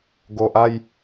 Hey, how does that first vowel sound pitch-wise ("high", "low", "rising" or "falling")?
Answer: low